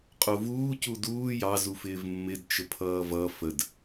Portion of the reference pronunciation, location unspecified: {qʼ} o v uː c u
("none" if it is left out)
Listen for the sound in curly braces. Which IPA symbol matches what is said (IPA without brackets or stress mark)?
qʼ